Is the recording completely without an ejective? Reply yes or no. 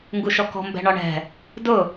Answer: yes